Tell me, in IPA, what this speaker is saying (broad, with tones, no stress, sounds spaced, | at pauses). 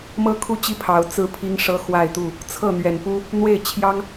m ɤ˦ kʰ u˥˨ t͡ɕ i˥˨ pʰ ɑ˨˦ ʊ̯ t͡s ɹ̩˦ pʰ i˦ ŋ ʂ ɤ˦ x w a˥˨ ɪ̯ t̪ u˥˨ | t͡sʰ ɤ˥˨ n̪ ɥ ɛ˨˩ n p u˦ | n̪ w e˥˨ ɪ̯ t͡ɕʰ j ɑ˦ ŋ